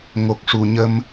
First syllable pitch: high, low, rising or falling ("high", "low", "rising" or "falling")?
low